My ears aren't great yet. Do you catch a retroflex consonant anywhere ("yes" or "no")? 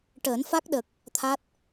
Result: yes